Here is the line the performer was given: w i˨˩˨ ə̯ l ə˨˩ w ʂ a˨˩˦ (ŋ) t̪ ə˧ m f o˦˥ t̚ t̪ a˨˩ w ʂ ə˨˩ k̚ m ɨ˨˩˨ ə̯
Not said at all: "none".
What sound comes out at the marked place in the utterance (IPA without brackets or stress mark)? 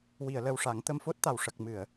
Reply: ŋ